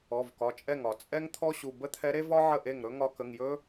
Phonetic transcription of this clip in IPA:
ɔ˩˧˩vkɒ˩˧˩ t͡ʃʼɛ˥˩ŋɒ˨˩˦ t͡sʼɛ˥ŋt̪ʰɔ˥ɕu˩˧˩ bə˥t̪ʰɛ˧˥ɾe˥vɒ˥ ʕə˥˩ʔe˥˩ŋɾɵ˥ŋɒ˧˥ kə˩˧˩ŋjɵ˥

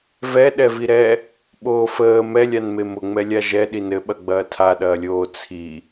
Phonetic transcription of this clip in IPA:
vɛ ɗɛviɾɛ | ɓoːfəː mɛlʲanme mʊŋ͡mɛlʲa ʒɛɗin ɘɓɐ ɡ͡bɐːtʰaɗɐːlʲoː t͡sʰi

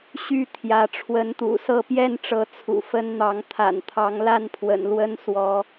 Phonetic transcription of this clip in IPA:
ɕy˥˨t̪ʰjä˨˦ ʈ͡ʂʰwə˨˦nt̪ṵ˨˩ sɤ˥˨pjɛ˥˨nʈ͡ʂɤ˨˦ t͡sʰṵ˨˩fə˦nn̪ɑ˨˦ŋ t̪ʰa̰˨˩nt̪ʰɑ˨˦ŋla˥˨npʰwə̰˨˩n lwə˦nswɔ˨˦

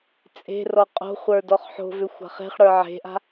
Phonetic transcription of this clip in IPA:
t͡sʼe̤ rɔqʼo̤χʷə˞ dɔχħo̤vʏxʷ a̤χe̤χɽə˞ ʕe̤ʔa̤

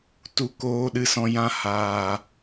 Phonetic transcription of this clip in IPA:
tu˧koː˧ɗɨ˧sɔ̃˧ jã˧haː˨

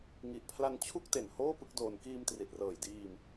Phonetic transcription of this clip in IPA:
ŋi˨˩ʔpʰla˧nt͡ɕʰu˥˩k̚te˨˩n hoː˥˩pɯ˥˩k̚doː˧n kiː˧mtri˨˩t̚rɤː˨˩jdiː˧m

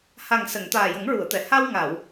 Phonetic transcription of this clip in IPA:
ha˨˩ŋsə˨˩˨ŋ t̪aː˨˩jə˨˩˦ŋɹu˨˩˨ə̯t̪ɛ˨˩˨ ha˧wŋa˨˩˨w

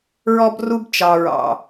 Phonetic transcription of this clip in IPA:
ɹɔ˦b ru˦bt͡ʃɑ˨ɹɑ̰˨

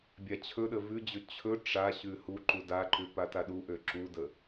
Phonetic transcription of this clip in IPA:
bʲat͡ɕʰɵɗə vʉd͡ʑɵ t͡ɕʰɵ ʈ͡ʂa ɕʉhuǃu daǃʉ pataɗuʔø ǁudə

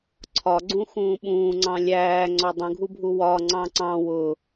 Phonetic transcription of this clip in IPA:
ǀʰɒɡ͡ǀũxũː ɓũːŋ͡ǀɑ̃ lʲæː ŋ͡ǀɒdˤũɡʱubʱu wɒ ŋ͡ǀɑ̃ǀɑ̃ wʊ

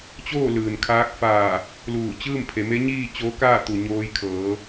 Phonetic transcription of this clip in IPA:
t͡ɕoː˥˨ lɯː˩nkʰaː˧˥k̚faː˧˩ | luː˧˩t͡ɕɯː˥˨mpʰe˩˧me˧˥ ɲiː˥˨ t͡ɕoː˧˥kaː˥˨ t̪u˩ ɲoː˧jkʰɤː˩˧

